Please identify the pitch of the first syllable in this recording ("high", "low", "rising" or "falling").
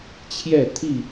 falling